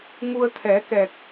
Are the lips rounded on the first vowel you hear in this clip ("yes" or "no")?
yes